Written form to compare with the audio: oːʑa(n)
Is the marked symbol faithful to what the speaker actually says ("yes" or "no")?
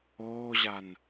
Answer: yes